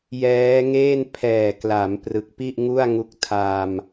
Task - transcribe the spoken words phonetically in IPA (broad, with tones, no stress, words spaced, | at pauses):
jɛː˦˥ŋeː˥˩n pʰɛː˨˩kla˩˦m prɯ˨˩k̚pi˥˩ʔŋu˥˩a̯ŋu˦˥k̚ tʰa˧m